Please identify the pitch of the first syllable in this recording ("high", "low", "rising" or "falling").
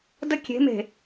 high